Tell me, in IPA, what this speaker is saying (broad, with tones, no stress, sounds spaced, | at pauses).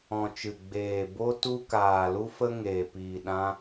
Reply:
ɔ̃˨ t͡ʃ ɨ˨ ɡ͡b eː˨ b o˧ t u˧ k aː˨ l u˧ f ə˧ ŋ eː˨ p iː˨ ɗ ã˧